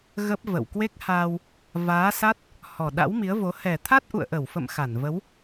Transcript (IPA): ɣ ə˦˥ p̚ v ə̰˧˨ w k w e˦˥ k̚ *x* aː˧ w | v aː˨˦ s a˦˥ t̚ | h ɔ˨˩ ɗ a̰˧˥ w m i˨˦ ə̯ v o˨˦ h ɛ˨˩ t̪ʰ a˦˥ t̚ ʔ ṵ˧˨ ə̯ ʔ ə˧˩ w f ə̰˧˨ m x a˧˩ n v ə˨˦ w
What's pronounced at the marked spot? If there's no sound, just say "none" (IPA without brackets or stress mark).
h